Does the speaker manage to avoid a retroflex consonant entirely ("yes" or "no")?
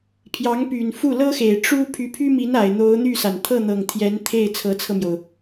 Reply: no